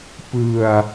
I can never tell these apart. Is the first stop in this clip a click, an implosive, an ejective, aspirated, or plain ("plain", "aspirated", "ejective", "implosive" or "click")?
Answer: plain